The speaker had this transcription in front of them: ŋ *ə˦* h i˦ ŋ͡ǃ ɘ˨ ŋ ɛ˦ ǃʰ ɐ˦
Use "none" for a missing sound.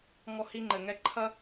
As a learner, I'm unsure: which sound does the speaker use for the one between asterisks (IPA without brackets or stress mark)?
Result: ɔ˦